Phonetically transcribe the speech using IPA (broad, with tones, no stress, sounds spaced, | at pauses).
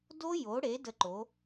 d o˦˥ j o˩˥ ɽ e˩˥ d ə˦˨ ǃ o˩˥